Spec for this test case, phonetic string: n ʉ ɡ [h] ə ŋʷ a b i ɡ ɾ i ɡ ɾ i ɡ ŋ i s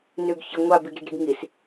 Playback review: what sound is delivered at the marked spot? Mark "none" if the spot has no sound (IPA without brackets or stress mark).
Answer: ç